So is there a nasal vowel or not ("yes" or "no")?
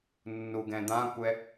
yes